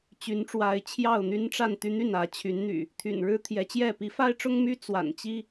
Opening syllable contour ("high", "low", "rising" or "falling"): rising